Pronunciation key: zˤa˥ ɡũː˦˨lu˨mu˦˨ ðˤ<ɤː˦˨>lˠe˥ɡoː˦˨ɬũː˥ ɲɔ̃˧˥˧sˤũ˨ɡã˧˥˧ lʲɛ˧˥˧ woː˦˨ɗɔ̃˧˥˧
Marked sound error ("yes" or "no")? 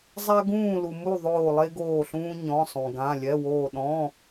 yes